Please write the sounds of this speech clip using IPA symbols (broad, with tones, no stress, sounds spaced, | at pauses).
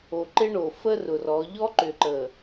o˨ ǃ ɪ˦ ɳ o˨ f ə˦ r ʊ˨ r ɔ˨˦ ʎ ɔ˦ ǃ ʏ˨ ǃ ə˨